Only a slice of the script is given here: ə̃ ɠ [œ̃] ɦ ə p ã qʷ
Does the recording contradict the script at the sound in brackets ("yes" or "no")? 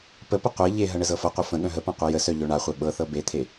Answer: no